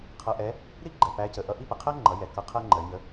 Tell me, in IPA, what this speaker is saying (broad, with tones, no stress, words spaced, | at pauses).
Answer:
qʰʌ˧ʔɛ˧˥ | ɾi˥ɡ͡ǃɛ˩ pæ˧˥cə˩˧ ʔʌ˧˥ʔi˥pə˩ qʰæ˥ŋ͡ǃʌ˩˧jɛ˩ kʌ˧˥qʰɜ˥ŋ͡ǃɜ˩˧ɲə˧˥